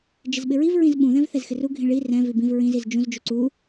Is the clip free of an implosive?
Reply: no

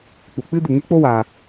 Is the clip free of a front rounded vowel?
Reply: yes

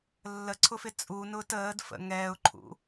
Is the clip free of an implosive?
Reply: yes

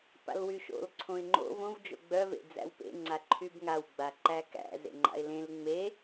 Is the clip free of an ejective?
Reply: yes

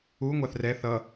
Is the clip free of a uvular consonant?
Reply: yes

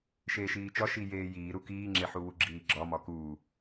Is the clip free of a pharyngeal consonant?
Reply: no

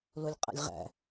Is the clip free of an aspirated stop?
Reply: yes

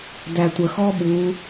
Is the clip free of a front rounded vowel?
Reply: yes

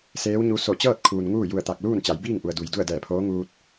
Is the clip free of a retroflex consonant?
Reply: yes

